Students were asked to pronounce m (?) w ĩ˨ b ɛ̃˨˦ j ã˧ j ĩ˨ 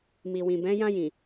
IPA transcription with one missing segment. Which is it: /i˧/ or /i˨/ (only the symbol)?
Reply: i˨